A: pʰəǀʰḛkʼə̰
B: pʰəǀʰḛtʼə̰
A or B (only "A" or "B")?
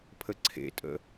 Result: B